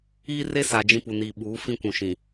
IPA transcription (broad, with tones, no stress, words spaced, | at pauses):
iː˦re˦sa˨ d͡ʒĩ˦ pu˨niː˨ɓuː˨˦ fĩ˦kʷũ˨ʃĩ˨